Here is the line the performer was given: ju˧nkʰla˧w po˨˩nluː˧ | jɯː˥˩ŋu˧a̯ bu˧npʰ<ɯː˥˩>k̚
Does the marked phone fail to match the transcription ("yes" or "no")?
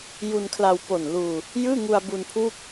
yes